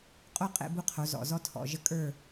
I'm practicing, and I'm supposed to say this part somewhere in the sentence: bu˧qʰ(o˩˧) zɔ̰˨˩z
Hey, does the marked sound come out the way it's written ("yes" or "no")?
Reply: yes